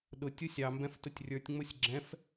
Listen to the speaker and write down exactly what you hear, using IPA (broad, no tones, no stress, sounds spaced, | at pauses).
ɗ ʊ tʲ u sʲ ɑ m b ɛ̃ f t ʊ tʲ rʲ ə˞ tʲ ŋ͡m ʊ sʲ ɡ͡ǁ ɛ̃ f